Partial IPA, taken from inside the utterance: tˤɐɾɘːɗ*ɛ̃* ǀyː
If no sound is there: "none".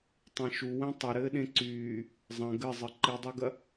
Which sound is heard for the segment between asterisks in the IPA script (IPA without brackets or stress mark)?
ẽ